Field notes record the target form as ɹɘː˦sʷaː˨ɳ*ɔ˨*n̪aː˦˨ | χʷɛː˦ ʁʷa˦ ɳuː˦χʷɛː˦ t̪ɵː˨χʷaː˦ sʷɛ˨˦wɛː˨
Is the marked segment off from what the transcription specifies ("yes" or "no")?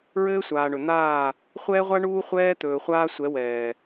yes